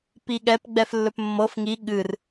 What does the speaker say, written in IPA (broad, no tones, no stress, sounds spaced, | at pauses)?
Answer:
p i ɠ ɛ p ɡ͡b ɛ f lː ɵ p mː ɤ f ŋ i ɠ ɨ r